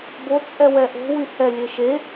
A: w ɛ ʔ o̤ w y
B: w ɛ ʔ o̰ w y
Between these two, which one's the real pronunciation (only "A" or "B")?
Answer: A